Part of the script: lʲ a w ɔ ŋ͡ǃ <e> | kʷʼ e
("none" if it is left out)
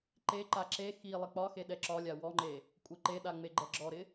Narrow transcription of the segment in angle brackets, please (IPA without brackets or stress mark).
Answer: e